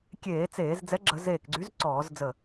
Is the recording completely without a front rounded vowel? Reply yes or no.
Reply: no